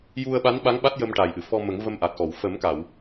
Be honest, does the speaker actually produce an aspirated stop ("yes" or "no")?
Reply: no